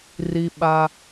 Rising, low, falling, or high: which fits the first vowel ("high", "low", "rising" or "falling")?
low